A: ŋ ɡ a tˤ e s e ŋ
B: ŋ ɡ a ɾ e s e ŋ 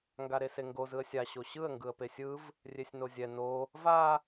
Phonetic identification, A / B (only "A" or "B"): B